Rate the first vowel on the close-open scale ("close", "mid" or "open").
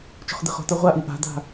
mid